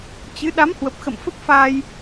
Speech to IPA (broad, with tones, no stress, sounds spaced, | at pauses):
t͡ɕ ɨ˨˦ ɗ a˨˦ m h w ə˨˩ p̚ x ə̰˧˨ m f ə˦˥ p̚ f aː˧ j